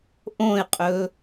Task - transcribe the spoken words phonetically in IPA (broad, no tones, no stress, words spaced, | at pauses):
ʔõɪ̯qʼɵ